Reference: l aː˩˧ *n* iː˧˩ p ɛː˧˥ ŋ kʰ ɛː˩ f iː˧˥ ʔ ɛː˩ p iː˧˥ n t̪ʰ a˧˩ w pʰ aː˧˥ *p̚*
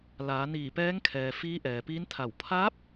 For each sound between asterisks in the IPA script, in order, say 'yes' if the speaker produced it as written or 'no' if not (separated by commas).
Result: yes, yes